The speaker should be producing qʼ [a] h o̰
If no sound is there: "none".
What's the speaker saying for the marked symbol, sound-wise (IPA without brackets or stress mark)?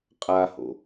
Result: a